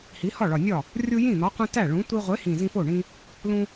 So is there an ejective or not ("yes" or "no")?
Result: no